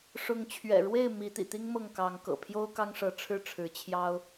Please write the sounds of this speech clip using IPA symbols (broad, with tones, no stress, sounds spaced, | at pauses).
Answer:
ʂ ʊ˨˦ ŋ t͡ɕʰ ɥ ɛ̰˨˩ ɻ w e˥˨ ɪ̯ m i˨˦ t̪ ḭ˨˩ t̪ i˦ ŋ m ɤ˥˨ ŋ k ɑ˨˦ ŋ k ɤ̰˨˩ pʰ j o˦ ʊ̯ k ɑ˦ ŋ ʂ ɤ˨˦ ʈ͡ʂʰ ɻ̩˥˨ ʈ͡ʂʰ ɻ̩˨˦ t͡ɕʰ j ɑ˦ ʊ̯